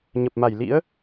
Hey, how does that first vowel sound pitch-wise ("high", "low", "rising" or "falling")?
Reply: low